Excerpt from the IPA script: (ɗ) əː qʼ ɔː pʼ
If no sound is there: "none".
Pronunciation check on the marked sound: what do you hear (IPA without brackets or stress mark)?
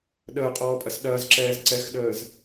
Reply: ɗ